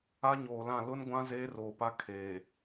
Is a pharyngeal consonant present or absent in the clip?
absent